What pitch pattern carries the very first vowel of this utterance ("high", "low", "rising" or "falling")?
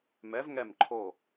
rising